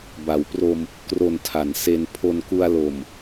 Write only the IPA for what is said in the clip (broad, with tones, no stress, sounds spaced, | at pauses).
b a˩˦ w p r o˧ m | k r o˨˩ n tʰ a˩˦ n s e˧ n pʰ o˧ n k u˧ a̯ l o˨˩ m